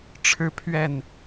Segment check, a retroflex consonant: present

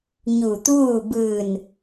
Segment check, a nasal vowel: absent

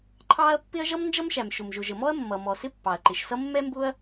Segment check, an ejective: absent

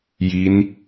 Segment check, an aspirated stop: absent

